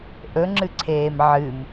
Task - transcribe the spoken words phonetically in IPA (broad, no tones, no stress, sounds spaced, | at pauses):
ʔ ɵ ŋ͡ǁ ɨ ǀʰ eː m ʕ ɨ m